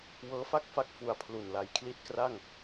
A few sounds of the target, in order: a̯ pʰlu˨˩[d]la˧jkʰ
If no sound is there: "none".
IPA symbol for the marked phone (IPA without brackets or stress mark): n